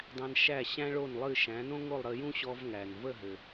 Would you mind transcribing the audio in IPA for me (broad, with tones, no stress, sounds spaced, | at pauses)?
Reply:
dˤ æ̃˧ n ʃ æ˥˩ ɕ æ̃˥ ɭ o˥˩ n lˠ ɨ˥˩ ʃ æ̃˩˥ n õ˥ ŋ o˥˩ lˠ ɾ ə˧ j ũ˥ ɕ ɔ˧ v ŋ æ˩ n v ə˥˩ ɦ ɘ˩